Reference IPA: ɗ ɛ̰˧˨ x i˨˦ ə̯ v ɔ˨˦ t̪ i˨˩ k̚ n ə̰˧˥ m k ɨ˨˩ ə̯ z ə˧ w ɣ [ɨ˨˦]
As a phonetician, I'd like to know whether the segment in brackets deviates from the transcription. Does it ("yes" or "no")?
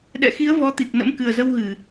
yes